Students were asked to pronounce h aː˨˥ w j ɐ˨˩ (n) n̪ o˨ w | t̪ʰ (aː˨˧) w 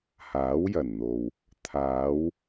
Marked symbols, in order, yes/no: yes, yes

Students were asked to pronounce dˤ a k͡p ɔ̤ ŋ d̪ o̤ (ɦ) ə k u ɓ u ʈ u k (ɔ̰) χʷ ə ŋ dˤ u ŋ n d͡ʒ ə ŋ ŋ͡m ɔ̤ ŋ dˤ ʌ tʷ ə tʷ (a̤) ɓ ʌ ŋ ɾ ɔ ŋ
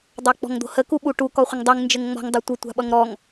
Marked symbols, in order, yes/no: no, no, yes

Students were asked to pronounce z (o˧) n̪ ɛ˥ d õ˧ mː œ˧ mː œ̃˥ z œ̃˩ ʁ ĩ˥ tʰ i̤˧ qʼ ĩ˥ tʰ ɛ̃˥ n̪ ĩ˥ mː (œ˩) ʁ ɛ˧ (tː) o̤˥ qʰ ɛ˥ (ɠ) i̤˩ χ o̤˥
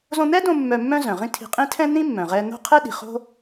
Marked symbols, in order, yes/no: no, no, no, no

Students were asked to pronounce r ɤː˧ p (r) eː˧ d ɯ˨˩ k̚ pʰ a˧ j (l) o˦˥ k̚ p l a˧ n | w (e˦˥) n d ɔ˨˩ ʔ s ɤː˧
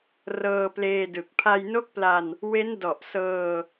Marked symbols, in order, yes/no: no, no, yes

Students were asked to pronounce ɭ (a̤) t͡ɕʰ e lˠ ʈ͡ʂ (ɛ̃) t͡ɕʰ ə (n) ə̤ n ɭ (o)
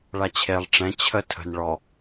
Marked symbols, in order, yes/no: no, yes, no, no

